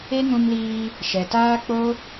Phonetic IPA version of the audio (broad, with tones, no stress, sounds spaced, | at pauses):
e˦ ŋ ũ˧ m l iː˧ | ʃ ɛ˨ t aː˦ k͡p o˦